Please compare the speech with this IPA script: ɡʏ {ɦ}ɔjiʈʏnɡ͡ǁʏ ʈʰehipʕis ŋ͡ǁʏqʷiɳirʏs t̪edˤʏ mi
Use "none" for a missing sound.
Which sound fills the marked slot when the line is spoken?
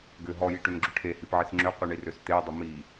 ɦ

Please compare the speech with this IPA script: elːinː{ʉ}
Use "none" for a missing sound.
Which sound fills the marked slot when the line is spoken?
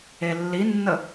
ə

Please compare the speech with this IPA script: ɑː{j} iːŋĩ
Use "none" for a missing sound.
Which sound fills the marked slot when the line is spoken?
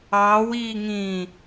w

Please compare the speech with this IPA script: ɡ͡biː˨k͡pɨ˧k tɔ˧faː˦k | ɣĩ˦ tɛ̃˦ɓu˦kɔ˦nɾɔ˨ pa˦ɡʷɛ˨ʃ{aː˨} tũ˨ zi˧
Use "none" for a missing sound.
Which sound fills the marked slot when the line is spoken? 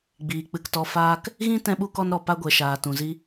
aː˨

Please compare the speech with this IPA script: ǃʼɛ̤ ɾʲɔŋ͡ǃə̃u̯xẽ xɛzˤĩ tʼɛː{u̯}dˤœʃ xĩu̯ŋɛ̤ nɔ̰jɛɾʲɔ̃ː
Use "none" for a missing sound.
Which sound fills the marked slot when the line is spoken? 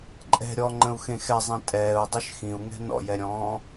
u̯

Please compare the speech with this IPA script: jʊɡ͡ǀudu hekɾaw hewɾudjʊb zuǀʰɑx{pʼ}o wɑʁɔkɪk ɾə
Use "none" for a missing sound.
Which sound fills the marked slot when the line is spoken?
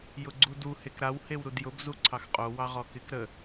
qʼ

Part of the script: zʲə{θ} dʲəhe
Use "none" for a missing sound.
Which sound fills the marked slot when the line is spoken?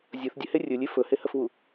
θ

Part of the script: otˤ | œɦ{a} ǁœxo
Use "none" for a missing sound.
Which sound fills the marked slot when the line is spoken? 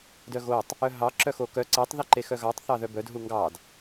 ɑ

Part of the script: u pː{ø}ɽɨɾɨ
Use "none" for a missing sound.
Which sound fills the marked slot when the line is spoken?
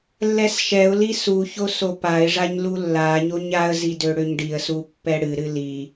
ɛ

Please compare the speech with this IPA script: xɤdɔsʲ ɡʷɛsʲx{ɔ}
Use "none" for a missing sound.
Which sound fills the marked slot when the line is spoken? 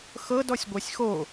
o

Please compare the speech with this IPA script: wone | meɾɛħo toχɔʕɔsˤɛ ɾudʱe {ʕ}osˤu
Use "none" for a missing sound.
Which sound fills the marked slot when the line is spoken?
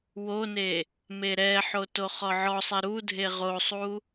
ʁ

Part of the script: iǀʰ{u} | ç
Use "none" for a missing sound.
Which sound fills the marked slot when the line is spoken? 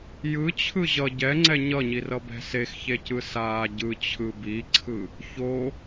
ɯ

